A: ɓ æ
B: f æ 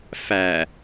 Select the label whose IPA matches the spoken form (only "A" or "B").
B